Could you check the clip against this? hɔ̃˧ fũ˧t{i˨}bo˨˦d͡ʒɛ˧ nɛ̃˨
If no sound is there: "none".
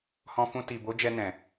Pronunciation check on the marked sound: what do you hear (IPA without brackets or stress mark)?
i˨